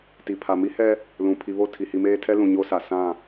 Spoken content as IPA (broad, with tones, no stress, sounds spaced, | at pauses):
t i˨ pʰ a˨ m i˦ h ɛ˦ | l ũ˨ pʰ i˨ β o˦˨ tʰ i˨ h i˨ m eː˦ tʰ ɛ˦ l ũ˨ ɲ o˦ s a˨ s ã˦˨